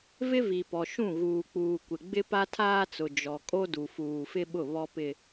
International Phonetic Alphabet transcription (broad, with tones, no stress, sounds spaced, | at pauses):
v ɪ˦ v i˨ p ɔ˨ ʃ ũ˦˨ ɣ uː˨ k͡p uː˨ kʷ ɪ˨ ɡ͡b ɪ˦ p a˦ tʰ aː˦ t͡s ʊ˨ d͡ʒ ɔ˨ kʼ o˦ d u˨ f uː˨ f ɪ˦ ɓ ʊ˦˨ β ɔ˦ p ɪ˦